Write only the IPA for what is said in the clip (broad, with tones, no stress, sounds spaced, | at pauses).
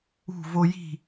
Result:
ṳ˥˧ v o˥ j i̤˥˧